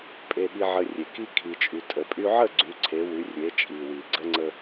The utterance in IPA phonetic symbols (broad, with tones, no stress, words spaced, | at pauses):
pʼe˧ɠi˧ʕə˧rʲe˩ ki˧ kʰi˩t͡ʃʼy˩tʼə˩ pʼy˧ʕə˥˩ɡ͡ǀy˩˧ǀʰe˩˧ wy˩˧rʲe˩˧t͡ʃʼi˩ wi˩ɡ͡ǀə˧ŋ͡ǀə˧